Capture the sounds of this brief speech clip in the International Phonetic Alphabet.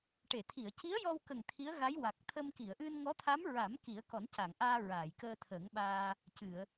ʈe˨˩˨t̪ʰi˨˩˨ə̯ci˧˥ə̯ jɔ˧wkə˨˩ŋ t̪ʰi˧˥ə̯ɣa˧˥j wa˨˩k̚t̪ʰə˧m ki˨˩˨ə̯ʔɨ˧nŋɔ˧˥t̪ʰa˧˥m ɹa˨˩˦m ki˨˩˦ə̯kɔ˨˩˦nca˨˩˨ŋʔaː˧ ɹaː˨˩˨jkəː˧t̪ʰə˨˩˦ŋɓaː˧ | cɨ˨˩˨ə̯

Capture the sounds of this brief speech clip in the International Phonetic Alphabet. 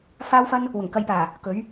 faː˥wfɐ˥n | wʊ˨˩ŋkɐ˧jpaː˨˩ | kɵ˨˥ɥ

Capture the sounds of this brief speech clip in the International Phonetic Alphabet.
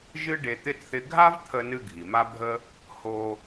ʒɨ˥ɖe˧ t̪ɪ˥t θɪ˧ɡʱa˥vt̪ʰə˧nɨ˧ ɡʱi˩ma˥bʱə˥ | ho˧

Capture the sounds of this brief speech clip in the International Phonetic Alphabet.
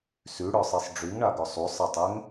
syɽœsˤisˤ ɖ͡ʐyŋɳaɡœ sˤusˤɛtˤɛŋ

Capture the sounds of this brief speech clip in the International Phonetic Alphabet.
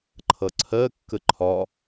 ǃʰʌǀʰɜ kːəǃʰɒ

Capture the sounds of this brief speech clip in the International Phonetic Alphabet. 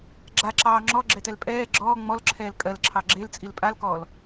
ɡ͡ǁaǁɑː ŋ͡ǁɔɡ͡ǁɛtɛl pʼɛː ɡ͡ǁɔː ŋ͡mɔlǁʰɛːl kʼɜlǁʰɑ ɡ͡ǁelt͡sʼil pʼalkɔːl

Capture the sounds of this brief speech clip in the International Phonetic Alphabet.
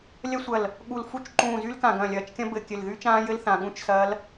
lʲɐ˦˥sʷɐ˧˩l | ɠu˧˩lfu˦˥t͡ʃ ǃũː˧˩ zy˦˥lkã˧˩ ɡɐ̃ː˧˩lʲɐː˧˩t͡ʃkʲɐ̃˦˥ bɘ˧˩ kʲɘ˧˩lðy˦˥t͡ʃãː˦˥jɘ˦˥l θã˧˩ɠũ˦˥t͡ʃsɐː˦˥l

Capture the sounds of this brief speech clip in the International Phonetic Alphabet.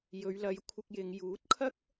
jɵ˨˧ɥlɐ˨˧jkʷʰɪ˧k̚jɪ˨˧ŋ juː˨˥t̚kʰɐ˥k̚

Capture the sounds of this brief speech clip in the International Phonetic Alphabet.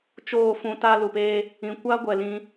t͡ʃoː˦˨fũ˧ ta˦lu˨peː˦ | ĩ˨kʷa˦ ɡʷɛ˨lĩ˧

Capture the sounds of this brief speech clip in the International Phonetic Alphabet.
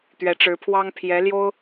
t̪ɥɛ˧˥ʈ͡ʂɻ̩˧˥pʰwɑ˥ŋpʰjɛ˧˥ ljo˥ʊ̯

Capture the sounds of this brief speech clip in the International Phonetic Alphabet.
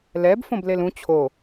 lɛb fõblelũ t͡ɕʰo

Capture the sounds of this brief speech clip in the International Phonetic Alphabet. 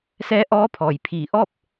sɛː˧˥ ʔɔː˧˥pʰɔː˩j pʰiː˧˩ʔɔː˥˨p̚

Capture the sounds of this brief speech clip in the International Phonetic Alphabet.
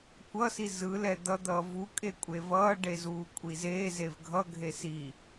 kʷʌsi zɯlɛ d̪ʌd̪ʌː vukʼekʷʼe vʌːɖezuːkʷʼi zeːzev ɡʱʌɡʱe si

